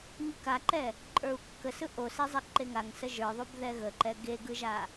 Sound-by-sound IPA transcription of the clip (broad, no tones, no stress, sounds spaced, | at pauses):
ŋ ɯ k a ǃ ɛ | ǃʼ ə˞ u̯ kː ə s ɯ ʔ o s e zˤ ɛ ǃ e ŋ a ŋ s ə ʒ ə˞ ðˤ u b ð ɛ ɣ ə ǃ ɛ ɡ e ɡ ɯ ʒ a